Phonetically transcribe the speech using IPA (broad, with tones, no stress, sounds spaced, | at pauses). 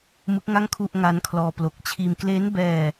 m ɯ˦˥ k̚ ŋ a˥˩ ŋ kʰ u˥˩ ʔ ŋ a˦˥ n kʰ l ɔː˧ p l o˨˩ k̚ t͡ɕʰ iː˧ m k l e˦˥ n b ɛː˧